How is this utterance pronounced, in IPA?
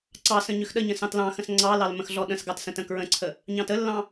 ǀ ɑ s ə̃ ɲ ʏ x ɗ ə ɲ ə̃ s ɑ̃ t l ɑ̃ x ə̃ s ŋ͡ǀ ɑ l ɑ l m ə̃ x ɮ ɔ ɗ ə̃ s ɡ ɑ t s ə̃ t ə̃ k ɹ ə̃ ǀʰ ə | ɲ ɑ̃ t ə lː ɑ̃

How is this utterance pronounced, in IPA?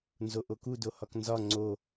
n z o ʔ o k u d o h ɒ k n z ɒ ŋ͡ǀ o

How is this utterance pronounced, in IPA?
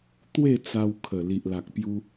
t̪ w e˥˧ t͡s a˧ w kʰ ə˨˩ l i˨ ʔ l a˨ k̚ p j u˧

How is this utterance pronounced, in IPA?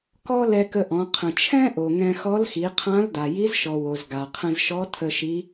k ɔ˥ l ɛ˧ k ə˧ ʔ ɔ̃˩˧ qʰ ə̃˩ t͡ʃʰ ɛ̃˥ ʔ o˩ ŋ ɛ̃˧ x ɔ˧˥ l x i˩˧ qʰ ã˧˥ l d a˩ j i˧˥ z ʃ ɔ˩ w o˩ z ɡ a˩ qʰ ə̃˧ z ʃ ɔ˧˥ tʰ ə˧ ʃ i˧˥

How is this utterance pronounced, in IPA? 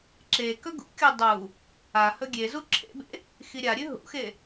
ǁ e k ɵ ɡ ṵ kʲ o dˤ u | a h ɵ ɡʲ e z u ǁʰ ḛ b ḛ | x i ɾʲ a ɾʲ ʉ ɦ ṵ x e

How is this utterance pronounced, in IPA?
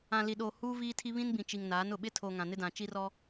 ã˨ l i˨ ɗ oː˨ h uː˦ v iː˦ tʰ i˦ β ĩ˦ n b ĩ˨ t͡ʃ i˨ ŋ n aː˨˦ n ʊ˨ ɓ ɪ˦ tʰ oː˨ ŋ ã˨ n ɪ˦ d ã˨ t͡ʃ i˦ r ɔ˦

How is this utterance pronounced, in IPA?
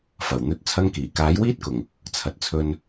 f ɐ˨˩ w n̪ ɵ˧ t̚ t͡sʰ ɐ˧ ŋ k iː˨˩ k aː˨˥ j w iː˥ t̚ k ʊ˨˩ ŋ | t͡sʰ ɐ˨ t̚ t͡sʰ ɵ˧ n

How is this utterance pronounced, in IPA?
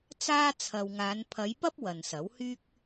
t͡s aː˥ t͡sʰ ɐ˨ w ŋ aː˨˧ n pʰ ɐ˨˧ j p ɐ˥ p̚ w ɐ˨ n s ɐ˨˥ w h yː˥ k̚

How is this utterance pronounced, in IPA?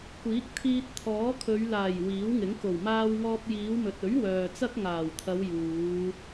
kʷ iː˨˥ k̚ t̪ʰ iː˧ t̚ t̪ʰ ɔː˨˥ kʰ ɵ˨˧ ɥ l aː˨˩ j w iː˨˥ w ŋ ɪ˨˥ ŋ k o˨˩ w m aː˧ w ŋ ɔː˧ p̚ j iː˨˧ w m ɵ˨ t̚ ɵ˨˥ ɥ w œː˨ t͡s ɐ˥ k̚ ŋ aː˨˩ w t̪ʰ ɐ˨˧ w j uː˨˧

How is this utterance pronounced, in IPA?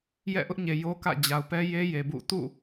j ɛ̰˦˨ ʔ ʊ˦ ʔ ɲ e˨ j o˦ k ä̰˦˨ d͡ʑ a˨ ʊ̯ p ɛ˦ j e˦ j e˨ b ṵ˦˨ t ṵ˦˨

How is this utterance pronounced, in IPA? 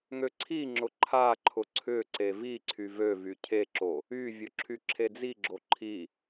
ŋ ø ǀʰ i ŋ͡ǁ ʊ ǃʰ a ǃʰ ʊ ǀʰ ʏ ǀ e v i ǀʰ y v ø v y cʰ e ǁ o | y vʲ ʊ ǁʰ y ǁʰ e d͡z i ɡ͡ǁ o ǃʰ i

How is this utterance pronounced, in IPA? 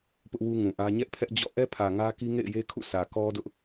p ʊ˦ ʔ w u˦ ŋ ũ˨ ʔ ä˦ ɲ ɛ˦ ʔ pʰ ɛ˦ ʔ d͡ʑ ɔ̰˦˨ ʔ ɛ˦ pʰ ä˨ ŋ ä˦ k i˦ ŋ ḛ˦˨ ɪ̯ j e˦ kʰ ṵ˦˨ sʰ ä˨ k ɔ˦ d ʊ˦ ʔ

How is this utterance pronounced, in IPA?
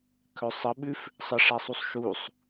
kʰ œ sˤ ə ɓ ʉ f | sˤ ə ʂ a sˤ u sˤ ʃ u sˤ

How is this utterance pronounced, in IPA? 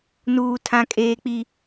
n uː˨ tʰ ã˨ kʼ eː˨ k͡p i˨

